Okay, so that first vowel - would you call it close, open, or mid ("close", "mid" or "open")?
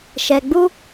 mid